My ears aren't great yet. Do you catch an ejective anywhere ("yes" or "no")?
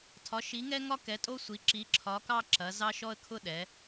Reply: yes